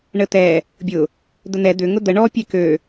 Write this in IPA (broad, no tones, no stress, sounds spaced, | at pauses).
ɳ ə t̪ ɛ | bʲ ʊ | d̪ ə n̪ ɛ d̪ ʏ ŋ ʊ d̪ ə ɳ ɔ pʲ ɛ k ø